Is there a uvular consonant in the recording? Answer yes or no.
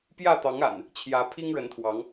no